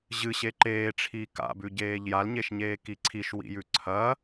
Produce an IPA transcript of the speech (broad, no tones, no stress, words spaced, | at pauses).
ʑɨɕe ǃeːʈ͡ʂʰiː ka̰bʉɟeːʎ jalɲeʃɲeːki ǀʰiʃwḭjʉ ǀʰɐ